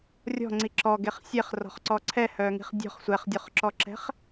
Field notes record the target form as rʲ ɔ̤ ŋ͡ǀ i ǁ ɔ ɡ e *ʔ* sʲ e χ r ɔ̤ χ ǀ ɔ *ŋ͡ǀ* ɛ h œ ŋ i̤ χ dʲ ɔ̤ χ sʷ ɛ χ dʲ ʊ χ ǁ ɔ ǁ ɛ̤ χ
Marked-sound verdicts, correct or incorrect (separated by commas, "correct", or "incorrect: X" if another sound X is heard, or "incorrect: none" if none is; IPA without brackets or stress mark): incorrect: χ, incorrect: ǀʰ